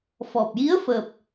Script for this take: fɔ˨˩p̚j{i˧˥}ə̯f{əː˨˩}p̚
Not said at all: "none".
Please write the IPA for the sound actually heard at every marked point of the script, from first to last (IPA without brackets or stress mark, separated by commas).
i˧˥, əː˨˩